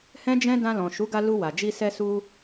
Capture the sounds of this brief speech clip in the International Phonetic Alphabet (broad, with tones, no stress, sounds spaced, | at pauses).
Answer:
h ɛ̃˦ d͡ʒ ɛ̃˦ d ã˧ l ɔ̃˨ ʃ u˨˦ ɡ a˧ l u˧ w a˨ d͡ʒ i˧ s ɛ˧ s u˧